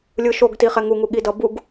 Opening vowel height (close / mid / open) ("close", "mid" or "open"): close